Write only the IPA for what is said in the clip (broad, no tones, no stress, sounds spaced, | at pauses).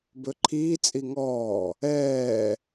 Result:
b ɵ ǃʰ iː t͡sʼ i ŋ ɔː | ɛː